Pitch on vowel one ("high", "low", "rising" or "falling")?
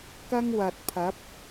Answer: high